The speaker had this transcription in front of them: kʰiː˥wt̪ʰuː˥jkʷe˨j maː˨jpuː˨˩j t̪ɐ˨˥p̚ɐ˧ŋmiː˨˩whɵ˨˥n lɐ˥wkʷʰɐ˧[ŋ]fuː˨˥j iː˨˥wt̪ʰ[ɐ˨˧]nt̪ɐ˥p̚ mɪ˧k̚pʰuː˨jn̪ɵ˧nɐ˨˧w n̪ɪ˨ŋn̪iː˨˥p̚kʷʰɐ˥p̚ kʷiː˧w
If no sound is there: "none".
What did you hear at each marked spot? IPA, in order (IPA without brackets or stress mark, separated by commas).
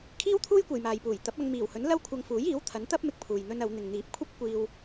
ŋ, ɐ˨˥